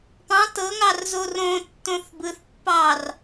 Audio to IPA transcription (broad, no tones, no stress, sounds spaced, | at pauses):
p ɑ̃ t ɤ ŋ ɑ r z o r õ tː õ θ b ɯ θ pː ɑ r